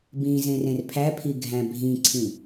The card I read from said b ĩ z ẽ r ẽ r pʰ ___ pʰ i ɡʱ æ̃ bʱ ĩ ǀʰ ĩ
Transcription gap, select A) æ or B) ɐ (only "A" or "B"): A